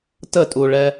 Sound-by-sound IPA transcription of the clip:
t ə tʼ u ɭ ɛ

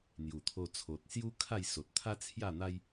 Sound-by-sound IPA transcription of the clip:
n̪ j u˨˩ t̪ʰ o˧ t͡sʰ o˨ t̚ s j u˦ kʰ a˥˧ j s o˨ t̚ t̪ʰ a˦ t͡sʰ j a˥˧ n̪ a˦ j

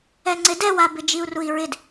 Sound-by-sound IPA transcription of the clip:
ɛ ŋ͡ǀ ɪ d ɛ w a b ɪ d͡ʒ i u̯ r u i̯ ɹ ɪ d

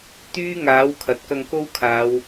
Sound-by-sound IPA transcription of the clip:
t̪ yː˥ ŋ aː˨˥ w kʰ ɐ˨ t̚ k ɐ˧ ŋ k o˥ w kʰ aː˨˧ w

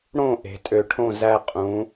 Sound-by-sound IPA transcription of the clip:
ɽ õ˥˧ ʔ e̤˩˧ tʼ ø˧˩ ʈʰ õ˥˧ z æ˧ qʼ ũ˩˧

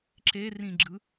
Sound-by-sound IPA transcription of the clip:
ǁ e r ĩ ɡ͡ǁ ɯ

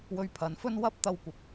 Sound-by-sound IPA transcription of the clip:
w ɵ˧ ɥ pʰ ɐ˨˧ n f ɵ˥ n w ɐ˥ p̚ t̪ ɐ˧ w kʷ ɐ˨˥ p̚

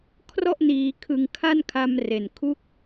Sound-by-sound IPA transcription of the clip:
kʰ r ɔ˥˩ ʔ n iː˩˦ kʰ ɯ˩˦ ŋ kʰ a˥˩ n kʰ a˧ m r e˨˩ n kʰ u˥˩ k̚

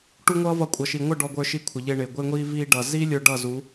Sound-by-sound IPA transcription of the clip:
ʈ u˦ ŋʷ ʌː˦ v ʌ˧ kʷʼ ʌ˨ ʃ i˨ ŋʷ ʌ˦˨ ɖ ɔ˧ ɡʷ ə˞˧ ʃ i˧ kʷʰ ɪ˨ ʎ ɪː˧ ɳ ɪː˨ ɡʷ ɪː˧ ŋʷ iː˧ v iː˧ ɖ ʌ˨ z iː˦ lʲ ə˞˧ ɖ ʌ˦˨ z u˨˦

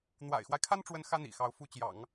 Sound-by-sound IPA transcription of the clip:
n̪ w a̰˨˩ ɪ̯ x w a˦ ɪ̯ kʰ a˥ n ʈ͡ʂ w ə˧˥ n x ä˥ n̪ ḭ˨˩ x ɑ˧˥ ʊ̯ f u˧˥ t͡ɕ j ɑ̰˨˩˦ ŋ

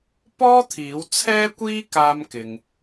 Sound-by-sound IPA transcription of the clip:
p ɔː˥ t̪ʰ iː˨˥ w t͡sʰ ɛː˥ kʷ iː˥ k aː˧ m k ɪ˨ ŋ

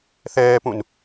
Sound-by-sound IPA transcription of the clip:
θ ɛː p ũ n

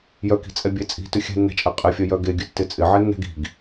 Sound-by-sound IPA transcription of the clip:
j œ k i̤ t͡sʼ ɛ bʲ e t͡sʼ i̤ t ʉ xʲ ɛ̤ nː ɛ̤ t͡ʃʼ ɛ qʼ ɪ fʲ œ j œ ɡ e ɡʲ ʉ tː ɪ t͡sʼ ɪ ʕ ɛ nː ɛ̤ ɡ i̤ ɡ

